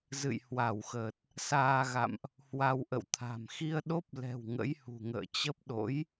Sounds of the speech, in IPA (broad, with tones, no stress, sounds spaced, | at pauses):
z ɨ̰˧˨ j h w a˧˩ w x əː˨˩ t̚ | s aː˧ ɣ a̰˧˨ m ʔ | h w a˧ w ʔ ə̰˧˨ w t̪ʰ a̤˨˩ m x i˧ ə̯ ɗ o˦˥ p̚ l ɛ̤˨˩ w ŋ ə̰˧˥ j h ṳ˨˩ ŋ ə̰ː˧˨ t͡ɕ ə˦˥ p̚ ɗ o̰˧˥ j